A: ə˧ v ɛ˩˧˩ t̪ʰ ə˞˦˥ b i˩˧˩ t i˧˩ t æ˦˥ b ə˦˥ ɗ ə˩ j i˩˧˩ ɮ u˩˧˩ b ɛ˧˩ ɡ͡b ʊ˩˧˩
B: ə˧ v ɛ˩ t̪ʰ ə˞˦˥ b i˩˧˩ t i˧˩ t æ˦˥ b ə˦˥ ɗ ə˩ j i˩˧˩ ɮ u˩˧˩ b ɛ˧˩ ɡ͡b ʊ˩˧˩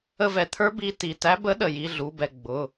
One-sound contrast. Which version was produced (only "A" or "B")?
B